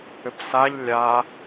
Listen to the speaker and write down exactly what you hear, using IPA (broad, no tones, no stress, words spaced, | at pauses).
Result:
ʏpsaʎ lʲa